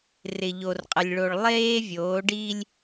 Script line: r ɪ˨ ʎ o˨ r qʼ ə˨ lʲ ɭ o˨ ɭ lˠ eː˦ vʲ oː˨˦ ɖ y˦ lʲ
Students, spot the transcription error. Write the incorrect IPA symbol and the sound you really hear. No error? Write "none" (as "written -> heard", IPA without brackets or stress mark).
y˦ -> i˦